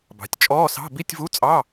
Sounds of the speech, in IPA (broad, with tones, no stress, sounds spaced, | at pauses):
b ɑ̤˩˧ tʲ t͡ʃʼ ɔː˧˥˧ s ɑ̤˧˥˧ b i˧˥˧ tʲ v u˧˥˧ t͡sʼ ɑ˧˥˧